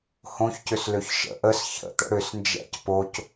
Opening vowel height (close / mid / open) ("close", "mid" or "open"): mid